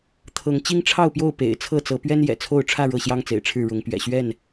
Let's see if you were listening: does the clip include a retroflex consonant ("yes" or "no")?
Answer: yes